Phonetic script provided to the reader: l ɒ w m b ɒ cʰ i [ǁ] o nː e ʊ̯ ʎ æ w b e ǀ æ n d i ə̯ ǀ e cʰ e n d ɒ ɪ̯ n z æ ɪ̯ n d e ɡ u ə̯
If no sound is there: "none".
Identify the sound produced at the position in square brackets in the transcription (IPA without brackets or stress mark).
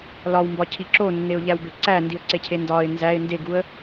ǁ